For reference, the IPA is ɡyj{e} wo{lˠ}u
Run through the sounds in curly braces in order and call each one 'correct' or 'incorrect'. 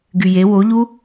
correct, incorrect

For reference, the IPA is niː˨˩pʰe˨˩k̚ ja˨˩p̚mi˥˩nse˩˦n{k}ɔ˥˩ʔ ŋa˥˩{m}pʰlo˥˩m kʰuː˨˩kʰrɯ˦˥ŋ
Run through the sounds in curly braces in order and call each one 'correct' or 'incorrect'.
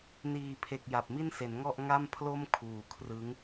incorrect, correct

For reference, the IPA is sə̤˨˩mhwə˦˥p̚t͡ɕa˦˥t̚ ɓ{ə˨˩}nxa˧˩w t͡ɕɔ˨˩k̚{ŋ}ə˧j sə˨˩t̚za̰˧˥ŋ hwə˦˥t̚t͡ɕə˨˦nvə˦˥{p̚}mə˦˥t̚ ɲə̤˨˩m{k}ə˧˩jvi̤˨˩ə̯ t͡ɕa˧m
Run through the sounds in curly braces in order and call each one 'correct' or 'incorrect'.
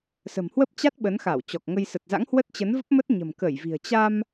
incorrect, correct, correct, correct

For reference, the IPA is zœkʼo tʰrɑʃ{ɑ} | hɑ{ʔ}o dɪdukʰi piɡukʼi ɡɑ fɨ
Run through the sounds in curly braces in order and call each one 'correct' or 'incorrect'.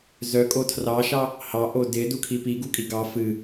correct, correct

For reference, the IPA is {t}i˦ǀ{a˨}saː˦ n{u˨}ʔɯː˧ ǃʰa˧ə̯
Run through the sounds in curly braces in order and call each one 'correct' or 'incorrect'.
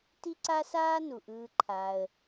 correct, incorrect, correct

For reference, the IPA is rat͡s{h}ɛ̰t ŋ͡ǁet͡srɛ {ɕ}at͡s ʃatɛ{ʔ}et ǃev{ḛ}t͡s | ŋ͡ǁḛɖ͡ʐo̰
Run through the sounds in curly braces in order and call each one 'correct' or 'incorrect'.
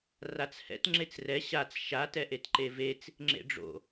correct, correct, correct, incorrect

